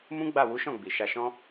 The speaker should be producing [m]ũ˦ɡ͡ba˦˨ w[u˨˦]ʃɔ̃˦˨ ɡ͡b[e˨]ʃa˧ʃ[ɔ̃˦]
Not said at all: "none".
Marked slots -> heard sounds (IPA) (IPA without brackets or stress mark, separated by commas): m, u˨˦, i˨, ɔ̃˦